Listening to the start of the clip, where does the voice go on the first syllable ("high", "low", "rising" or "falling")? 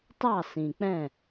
falling